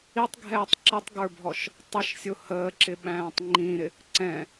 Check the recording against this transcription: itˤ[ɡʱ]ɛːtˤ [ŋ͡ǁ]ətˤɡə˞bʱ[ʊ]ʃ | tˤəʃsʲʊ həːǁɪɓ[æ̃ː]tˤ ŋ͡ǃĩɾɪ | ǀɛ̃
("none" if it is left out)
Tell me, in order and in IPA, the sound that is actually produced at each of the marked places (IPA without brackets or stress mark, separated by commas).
ɡʱ, ǁ, ɔ, æ̃ː